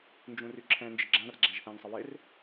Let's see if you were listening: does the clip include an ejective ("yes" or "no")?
no